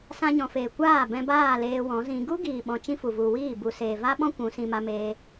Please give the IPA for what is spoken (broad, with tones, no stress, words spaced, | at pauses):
sã˧ɲɔ̃˨feː˨ kʷaː˦˨ bɛ̃˧baː˦˨ leː˧wɔ̃˨˦zĩ˧ ɡu˦ɡiː˨ɓɔ̃˨ t͡ʃĩ˦fu˨ vu˨wiː˦˨ bu˨seː˨va˦ɓɔ̃˦ kʷũ˨˦sĩ˧ ma˧meː˧